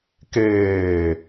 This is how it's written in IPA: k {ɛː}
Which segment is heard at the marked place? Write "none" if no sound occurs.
eː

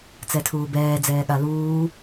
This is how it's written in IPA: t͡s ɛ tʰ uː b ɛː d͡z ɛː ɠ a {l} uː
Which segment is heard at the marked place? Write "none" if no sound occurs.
l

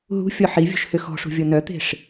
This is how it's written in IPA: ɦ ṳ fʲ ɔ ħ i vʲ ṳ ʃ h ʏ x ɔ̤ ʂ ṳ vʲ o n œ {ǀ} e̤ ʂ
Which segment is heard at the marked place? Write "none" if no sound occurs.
t̪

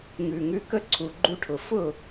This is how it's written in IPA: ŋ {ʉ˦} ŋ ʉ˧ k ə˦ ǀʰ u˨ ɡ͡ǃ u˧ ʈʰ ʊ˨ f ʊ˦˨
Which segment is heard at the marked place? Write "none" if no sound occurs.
ʉ˨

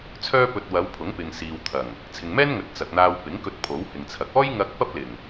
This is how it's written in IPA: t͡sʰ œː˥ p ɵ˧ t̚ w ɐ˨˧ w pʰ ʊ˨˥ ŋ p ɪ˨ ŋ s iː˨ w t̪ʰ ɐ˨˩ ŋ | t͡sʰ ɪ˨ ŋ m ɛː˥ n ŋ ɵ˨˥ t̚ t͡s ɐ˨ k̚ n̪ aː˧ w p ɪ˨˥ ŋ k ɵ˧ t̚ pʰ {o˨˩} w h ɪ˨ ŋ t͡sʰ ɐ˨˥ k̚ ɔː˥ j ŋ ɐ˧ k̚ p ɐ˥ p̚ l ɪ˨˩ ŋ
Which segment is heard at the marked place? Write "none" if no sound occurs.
o˨˥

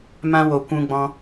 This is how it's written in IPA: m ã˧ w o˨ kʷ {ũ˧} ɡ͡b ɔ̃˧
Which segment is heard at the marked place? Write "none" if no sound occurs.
ũ˧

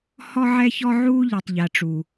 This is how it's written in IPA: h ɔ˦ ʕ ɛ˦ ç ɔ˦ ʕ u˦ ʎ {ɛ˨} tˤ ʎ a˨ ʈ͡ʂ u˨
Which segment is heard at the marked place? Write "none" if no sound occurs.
ɛ˨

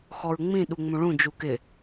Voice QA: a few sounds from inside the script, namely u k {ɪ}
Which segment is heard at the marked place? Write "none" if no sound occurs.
ɪ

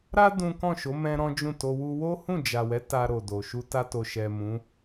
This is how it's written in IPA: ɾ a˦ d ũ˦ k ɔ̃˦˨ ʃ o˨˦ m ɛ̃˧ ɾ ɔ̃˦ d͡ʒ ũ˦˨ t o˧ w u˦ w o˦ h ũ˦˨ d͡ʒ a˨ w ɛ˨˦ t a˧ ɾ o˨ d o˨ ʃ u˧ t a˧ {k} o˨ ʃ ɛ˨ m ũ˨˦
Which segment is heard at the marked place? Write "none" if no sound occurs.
t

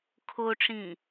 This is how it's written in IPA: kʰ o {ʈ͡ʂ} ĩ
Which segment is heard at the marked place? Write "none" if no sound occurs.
ʈ͡ʂ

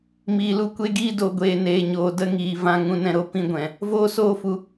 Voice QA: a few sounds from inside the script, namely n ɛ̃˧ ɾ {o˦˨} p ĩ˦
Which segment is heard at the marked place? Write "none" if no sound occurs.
o˧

